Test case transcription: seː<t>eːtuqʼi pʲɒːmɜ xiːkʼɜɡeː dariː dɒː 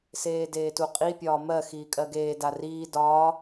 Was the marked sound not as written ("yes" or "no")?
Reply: yes